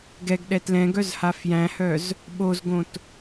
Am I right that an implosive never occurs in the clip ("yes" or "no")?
no